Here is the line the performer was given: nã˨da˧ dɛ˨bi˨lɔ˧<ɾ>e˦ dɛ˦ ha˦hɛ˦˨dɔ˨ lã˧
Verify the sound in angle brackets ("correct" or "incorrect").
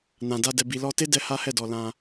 incorrect